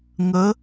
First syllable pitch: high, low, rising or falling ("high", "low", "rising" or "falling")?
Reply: rising